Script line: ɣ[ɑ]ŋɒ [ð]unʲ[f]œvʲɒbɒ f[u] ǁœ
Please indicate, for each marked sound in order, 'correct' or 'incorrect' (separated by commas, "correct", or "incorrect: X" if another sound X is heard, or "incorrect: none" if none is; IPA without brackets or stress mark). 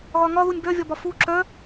incorrect: ɒ, correct, incorrect: b, correct